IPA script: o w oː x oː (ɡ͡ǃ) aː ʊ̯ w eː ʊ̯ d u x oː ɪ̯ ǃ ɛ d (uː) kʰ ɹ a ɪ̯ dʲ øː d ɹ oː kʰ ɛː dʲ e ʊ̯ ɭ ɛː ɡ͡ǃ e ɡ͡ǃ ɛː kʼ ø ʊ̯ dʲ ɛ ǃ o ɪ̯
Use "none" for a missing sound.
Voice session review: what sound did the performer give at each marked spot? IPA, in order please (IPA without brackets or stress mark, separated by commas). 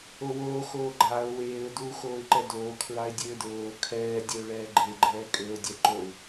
ɡ͡ǃ, oː